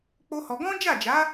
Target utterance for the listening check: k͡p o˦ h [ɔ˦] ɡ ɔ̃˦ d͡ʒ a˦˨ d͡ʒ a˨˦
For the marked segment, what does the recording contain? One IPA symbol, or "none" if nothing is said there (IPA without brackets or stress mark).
ɔ˧